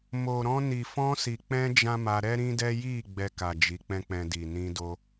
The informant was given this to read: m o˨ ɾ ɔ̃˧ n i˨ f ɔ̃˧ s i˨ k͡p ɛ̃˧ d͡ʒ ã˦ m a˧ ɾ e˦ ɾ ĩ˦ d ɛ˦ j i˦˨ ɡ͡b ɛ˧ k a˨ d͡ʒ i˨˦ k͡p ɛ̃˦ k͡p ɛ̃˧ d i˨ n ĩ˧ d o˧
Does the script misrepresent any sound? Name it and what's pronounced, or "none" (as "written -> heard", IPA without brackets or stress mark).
e˦ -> ɛ˦